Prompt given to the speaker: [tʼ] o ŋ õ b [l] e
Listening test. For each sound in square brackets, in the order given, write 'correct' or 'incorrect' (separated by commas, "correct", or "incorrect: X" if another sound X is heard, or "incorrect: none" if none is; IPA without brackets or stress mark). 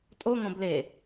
correct, correct